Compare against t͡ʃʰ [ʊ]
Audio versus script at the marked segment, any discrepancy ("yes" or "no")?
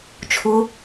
no